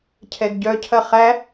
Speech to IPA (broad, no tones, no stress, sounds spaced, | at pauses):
cʰ ɛ ɡ ɟ œ cʰ ɐ χ æ